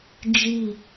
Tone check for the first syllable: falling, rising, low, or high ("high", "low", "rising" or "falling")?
falling